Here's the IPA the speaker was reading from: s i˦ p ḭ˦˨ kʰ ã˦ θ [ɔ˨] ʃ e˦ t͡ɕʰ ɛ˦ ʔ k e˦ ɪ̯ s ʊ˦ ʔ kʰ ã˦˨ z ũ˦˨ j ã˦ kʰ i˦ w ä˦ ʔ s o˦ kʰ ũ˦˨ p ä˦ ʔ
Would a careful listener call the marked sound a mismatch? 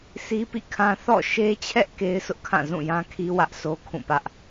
yes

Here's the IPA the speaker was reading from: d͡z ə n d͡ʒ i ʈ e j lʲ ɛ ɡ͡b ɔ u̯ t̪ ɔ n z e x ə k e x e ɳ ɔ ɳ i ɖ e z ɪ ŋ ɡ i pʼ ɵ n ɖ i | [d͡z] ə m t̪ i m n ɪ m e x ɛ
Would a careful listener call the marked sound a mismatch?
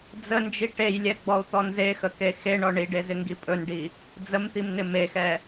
no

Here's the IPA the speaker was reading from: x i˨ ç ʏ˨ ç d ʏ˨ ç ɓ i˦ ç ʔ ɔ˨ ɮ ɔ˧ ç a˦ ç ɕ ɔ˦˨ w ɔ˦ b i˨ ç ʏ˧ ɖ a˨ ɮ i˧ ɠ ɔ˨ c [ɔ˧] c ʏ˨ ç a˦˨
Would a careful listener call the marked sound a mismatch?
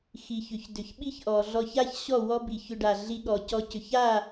no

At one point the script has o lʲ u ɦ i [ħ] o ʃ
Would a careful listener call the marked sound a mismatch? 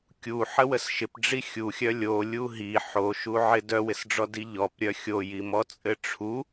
no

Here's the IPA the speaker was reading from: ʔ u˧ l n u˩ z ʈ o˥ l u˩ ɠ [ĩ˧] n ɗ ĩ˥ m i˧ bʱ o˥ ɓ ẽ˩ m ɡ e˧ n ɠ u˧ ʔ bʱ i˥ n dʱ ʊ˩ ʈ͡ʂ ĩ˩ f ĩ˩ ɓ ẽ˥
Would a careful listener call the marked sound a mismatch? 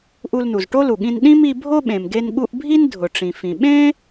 no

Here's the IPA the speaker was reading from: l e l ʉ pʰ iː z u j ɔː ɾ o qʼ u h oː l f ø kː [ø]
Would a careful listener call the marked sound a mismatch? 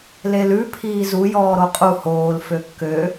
no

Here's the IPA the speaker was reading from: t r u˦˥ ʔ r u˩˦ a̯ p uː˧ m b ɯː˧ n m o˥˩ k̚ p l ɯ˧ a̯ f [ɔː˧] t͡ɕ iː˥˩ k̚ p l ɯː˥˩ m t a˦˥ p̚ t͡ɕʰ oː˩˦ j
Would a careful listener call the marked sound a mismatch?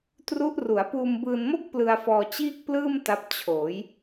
no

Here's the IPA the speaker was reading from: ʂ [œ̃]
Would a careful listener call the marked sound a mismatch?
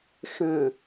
no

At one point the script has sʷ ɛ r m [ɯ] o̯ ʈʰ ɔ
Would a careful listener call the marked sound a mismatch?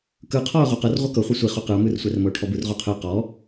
yes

